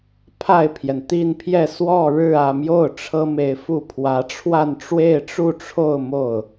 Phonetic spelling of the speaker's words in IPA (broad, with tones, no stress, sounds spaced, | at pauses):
pʰ a˥˩ ɪ̯ pʰ j ɛ˩ n t̪ i˥˧ n pʰ j ɛ˥˧ s w ɔ˥˧ ɻ ɻ̩˥˧ ä˥˧ m j o˥˩ ʊ̯ ʈ͡ʂʰ ɤ˥ m e˧˥ ɪ̯ f u˥˩ pʰ w ä˧˥ ʈ͡ʂʰ w a˥˧ n ʈ͡ʂ w e˥˧ ɪ̯ ʈ͡ʂ u˥˧ ʈ͡ʂʰ o˥˧ ʊ̯ m o˥˩ ʊ̯